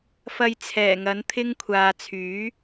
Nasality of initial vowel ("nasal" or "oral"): oral